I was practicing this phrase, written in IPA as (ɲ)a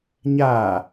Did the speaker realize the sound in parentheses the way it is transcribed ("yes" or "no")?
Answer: yes